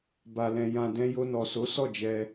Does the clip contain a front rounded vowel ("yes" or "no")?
no